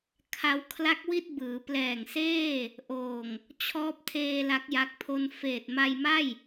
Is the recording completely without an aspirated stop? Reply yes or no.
no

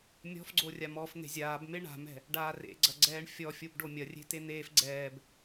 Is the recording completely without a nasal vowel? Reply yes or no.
yes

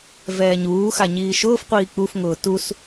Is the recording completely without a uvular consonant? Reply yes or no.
no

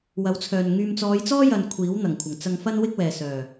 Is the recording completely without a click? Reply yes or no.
yes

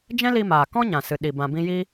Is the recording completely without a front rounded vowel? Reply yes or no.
yes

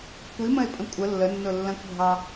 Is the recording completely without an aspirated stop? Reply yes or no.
yes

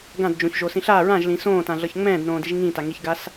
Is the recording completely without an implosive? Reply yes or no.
yes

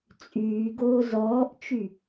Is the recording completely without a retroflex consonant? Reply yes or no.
yes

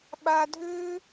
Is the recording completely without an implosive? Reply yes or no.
no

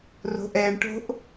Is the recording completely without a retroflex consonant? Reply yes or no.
no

